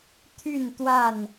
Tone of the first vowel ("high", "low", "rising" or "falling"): falling